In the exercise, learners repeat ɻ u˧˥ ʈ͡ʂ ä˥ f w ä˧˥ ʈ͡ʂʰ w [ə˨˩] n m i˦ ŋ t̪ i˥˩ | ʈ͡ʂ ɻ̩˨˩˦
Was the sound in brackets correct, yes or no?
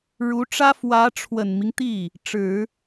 yes